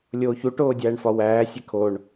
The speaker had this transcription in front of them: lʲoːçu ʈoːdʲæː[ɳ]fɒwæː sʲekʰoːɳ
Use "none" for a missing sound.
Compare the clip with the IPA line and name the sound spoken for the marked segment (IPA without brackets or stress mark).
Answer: ɳ